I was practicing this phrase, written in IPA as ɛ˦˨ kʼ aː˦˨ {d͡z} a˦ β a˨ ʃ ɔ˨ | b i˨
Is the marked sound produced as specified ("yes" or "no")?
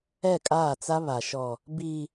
no